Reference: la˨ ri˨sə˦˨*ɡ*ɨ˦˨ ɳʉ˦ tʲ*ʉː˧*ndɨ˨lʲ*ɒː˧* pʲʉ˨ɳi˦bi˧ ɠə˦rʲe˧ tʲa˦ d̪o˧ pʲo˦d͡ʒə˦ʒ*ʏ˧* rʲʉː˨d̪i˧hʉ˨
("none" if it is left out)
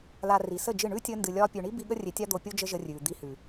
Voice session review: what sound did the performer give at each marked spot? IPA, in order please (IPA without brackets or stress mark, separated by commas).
d͡ʒ, əː˧, ɒː˧, ə˧